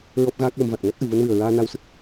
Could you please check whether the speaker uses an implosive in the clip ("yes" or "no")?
no